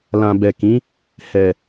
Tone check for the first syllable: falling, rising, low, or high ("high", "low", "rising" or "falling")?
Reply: low